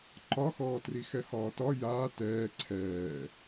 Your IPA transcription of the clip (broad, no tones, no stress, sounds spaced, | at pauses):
ǃ ɒ x ɔː t r i x ɛ h ɒː t ɒ j aː t ɛː ǀʰ ɛː